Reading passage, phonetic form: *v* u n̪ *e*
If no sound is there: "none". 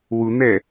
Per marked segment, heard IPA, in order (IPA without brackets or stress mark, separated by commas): w, ɛ